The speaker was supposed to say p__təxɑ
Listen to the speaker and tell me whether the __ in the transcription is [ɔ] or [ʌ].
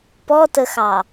ɔ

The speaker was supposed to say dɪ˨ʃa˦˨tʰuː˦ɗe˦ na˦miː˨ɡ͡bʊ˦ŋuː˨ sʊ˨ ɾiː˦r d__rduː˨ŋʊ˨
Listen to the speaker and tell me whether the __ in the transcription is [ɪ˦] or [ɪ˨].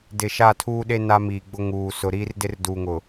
ɪ˦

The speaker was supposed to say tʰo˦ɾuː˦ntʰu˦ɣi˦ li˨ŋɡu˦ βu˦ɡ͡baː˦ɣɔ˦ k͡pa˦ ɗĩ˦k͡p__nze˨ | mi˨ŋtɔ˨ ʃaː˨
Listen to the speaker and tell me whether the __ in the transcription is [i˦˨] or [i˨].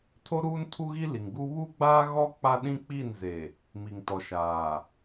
i˦˨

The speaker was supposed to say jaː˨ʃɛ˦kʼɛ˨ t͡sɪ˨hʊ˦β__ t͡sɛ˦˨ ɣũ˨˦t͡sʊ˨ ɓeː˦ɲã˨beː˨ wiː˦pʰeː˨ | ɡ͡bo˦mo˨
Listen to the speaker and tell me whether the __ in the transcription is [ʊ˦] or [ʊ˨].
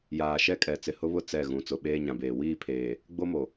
ʊ˦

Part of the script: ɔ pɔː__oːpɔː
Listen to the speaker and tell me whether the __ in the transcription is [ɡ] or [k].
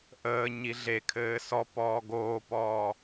ɡ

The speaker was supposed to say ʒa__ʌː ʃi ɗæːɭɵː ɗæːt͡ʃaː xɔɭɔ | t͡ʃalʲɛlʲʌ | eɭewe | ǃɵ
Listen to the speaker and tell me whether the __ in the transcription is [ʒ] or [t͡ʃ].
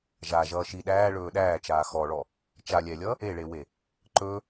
ʒ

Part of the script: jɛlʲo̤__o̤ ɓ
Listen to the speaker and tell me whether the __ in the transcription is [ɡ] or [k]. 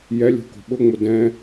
k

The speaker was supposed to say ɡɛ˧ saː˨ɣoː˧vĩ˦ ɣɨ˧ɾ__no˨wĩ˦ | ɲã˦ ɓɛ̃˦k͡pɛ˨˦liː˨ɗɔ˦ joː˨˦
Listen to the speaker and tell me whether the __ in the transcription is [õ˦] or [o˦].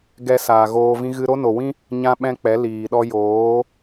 o˦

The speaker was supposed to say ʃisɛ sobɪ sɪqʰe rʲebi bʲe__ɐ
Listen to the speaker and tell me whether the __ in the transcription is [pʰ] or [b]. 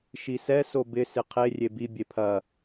pʰ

